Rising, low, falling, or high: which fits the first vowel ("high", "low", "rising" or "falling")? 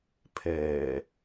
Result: low